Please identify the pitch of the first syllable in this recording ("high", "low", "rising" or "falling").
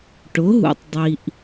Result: rising